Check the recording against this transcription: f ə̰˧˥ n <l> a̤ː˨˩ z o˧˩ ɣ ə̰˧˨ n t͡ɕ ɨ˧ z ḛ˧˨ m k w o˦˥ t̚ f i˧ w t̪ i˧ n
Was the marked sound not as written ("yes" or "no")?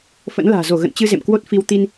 no